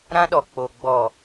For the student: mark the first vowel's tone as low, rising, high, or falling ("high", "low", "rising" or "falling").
high